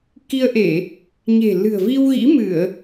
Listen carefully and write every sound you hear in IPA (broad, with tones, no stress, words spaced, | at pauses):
ki˧ə̯ʔe˧˩˨ | ɲe̤˨˩ lɨ̤˨˩ə̯vi˧wɣḭ˧˥ mɨ˧˩˨ə̯